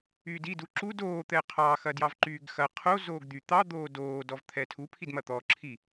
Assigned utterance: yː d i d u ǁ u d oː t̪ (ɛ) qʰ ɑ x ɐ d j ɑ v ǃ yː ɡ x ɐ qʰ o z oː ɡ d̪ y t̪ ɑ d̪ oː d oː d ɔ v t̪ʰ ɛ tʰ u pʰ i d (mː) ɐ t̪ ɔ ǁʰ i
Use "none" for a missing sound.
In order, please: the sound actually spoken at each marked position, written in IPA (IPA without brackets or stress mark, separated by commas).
ɛ, m